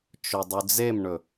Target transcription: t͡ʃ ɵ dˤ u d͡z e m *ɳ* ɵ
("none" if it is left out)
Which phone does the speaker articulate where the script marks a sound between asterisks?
ɳ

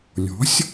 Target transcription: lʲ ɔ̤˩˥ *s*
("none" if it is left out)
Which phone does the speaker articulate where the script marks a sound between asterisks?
sʲ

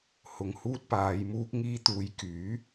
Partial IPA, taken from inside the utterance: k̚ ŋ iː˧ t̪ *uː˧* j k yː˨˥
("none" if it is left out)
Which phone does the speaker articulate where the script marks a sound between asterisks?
uː˨˧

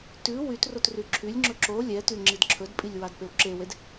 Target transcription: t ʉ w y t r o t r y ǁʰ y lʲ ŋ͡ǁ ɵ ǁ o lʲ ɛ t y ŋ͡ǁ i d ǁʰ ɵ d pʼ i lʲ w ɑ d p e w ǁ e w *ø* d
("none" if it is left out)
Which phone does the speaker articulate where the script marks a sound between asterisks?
e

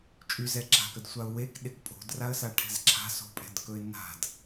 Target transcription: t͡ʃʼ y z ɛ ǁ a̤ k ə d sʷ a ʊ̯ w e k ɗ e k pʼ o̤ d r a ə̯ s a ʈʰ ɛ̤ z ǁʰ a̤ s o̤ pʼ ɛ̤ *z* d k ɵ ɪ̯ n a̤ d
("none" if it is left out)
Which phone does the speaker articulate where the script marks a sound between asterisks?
none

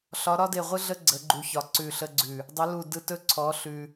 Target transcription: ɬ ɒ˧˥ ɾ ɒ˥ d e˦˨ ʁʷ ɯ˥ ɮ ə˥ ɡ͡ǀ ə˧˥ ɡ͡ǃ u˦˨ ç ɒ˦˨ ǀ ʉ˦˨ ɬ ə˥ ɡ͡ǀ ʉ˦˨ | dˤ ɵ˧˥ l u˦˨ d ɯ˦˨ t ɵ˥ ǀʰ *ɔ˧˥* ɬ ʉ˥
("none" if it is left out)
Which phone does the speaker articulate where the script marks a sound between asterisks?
ɔ˧˥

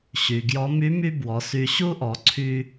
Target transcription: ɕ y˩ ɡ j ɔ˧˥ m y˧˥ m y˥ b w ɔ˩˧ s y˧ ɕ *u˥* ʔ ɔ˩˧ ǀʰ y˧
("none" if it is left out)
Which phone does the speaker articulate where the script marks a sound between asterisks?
u˥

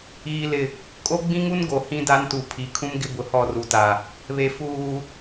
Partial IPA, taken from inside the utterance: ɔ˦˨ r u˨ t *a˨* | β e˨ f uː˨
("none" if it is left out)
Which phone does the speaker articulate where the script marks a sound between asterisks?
a˨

